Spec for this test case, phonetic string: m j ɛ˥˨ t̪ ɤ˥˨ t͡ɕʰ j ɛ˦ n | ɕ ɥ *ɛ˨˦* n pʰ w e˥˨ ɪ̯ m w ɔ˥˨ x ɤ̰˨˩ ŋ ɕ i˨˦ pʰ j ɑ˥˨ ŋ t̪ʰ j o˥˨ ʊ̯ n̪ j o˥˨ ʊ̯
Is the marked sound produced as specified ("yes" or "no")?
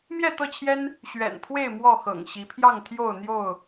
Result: no